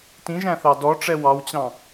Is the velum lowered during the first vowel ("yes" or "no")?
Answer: yes